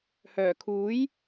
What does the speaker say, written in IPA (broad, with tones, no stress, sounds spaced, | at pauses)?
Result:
h œː˨˩ kʰ uː˨˥ j